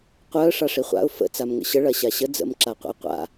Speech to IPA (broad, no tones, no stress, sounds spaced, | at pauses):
qʷ œ ə̯ ʂ a ʂ i χʷ a̰ ʊ̯ f ə̰ t͡s a m ŋ ə̰ ɕ ə ɭ ɐ ɕ a ɕ ə d͡z ə̰ m ǁ a qʷ ə̰ ɪ̯ qʷ a̰